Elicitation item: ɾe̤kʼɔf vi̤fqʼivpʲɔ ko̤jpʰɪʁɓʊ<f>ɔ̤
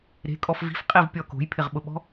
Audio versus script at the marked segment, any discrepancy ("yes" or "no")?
yes